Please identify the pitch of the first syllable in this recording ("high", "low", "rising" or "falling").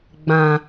low